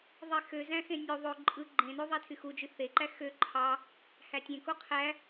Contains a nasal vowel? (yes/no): yes